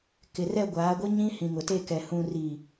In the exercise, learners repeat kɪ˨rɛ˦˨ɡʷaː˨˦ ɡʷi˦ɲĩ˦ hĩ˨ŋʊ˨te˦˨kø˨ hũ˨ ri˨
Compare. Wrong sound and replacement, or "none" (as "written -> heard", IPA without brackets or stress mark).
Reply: ø˨ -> ɛ˨